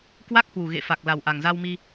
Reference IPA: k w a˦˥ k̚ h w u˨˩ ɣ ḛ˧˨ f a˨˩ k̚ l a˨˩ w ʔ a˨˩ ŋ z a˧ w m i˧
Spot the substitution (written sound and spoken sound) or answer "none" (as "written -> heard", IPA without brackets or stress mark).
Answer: none